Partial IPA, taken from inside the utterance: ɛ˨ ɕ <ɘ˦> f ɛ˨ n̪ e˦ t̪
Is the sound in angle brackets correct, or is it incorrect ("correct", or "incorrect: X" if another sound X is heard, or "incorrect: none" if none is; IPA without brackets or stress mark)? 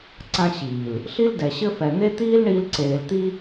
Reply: correct